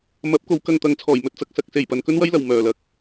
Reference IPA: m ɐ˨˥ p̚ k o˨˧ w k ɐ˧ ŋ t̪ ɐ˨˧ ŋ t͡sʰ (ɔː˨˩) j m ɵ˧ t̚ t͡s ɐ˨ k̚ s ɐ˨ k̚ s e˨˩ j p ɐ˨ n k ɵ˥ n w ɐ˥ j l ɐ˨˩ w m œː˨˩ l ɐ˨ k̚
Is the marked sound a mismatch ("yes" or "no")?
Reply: no